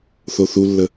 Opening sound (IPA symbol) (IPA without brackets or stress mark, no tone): θ